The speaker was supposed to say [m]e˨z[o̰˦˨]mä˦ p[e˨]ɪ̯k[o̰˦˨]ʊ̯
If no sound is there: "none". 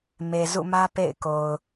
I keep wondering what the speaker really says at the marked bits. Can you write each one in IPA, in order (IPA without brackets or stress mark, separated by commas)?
m, ṵ˦˨, ḛ˦˨, o˨